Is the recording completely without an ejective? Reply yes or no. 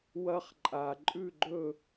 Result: no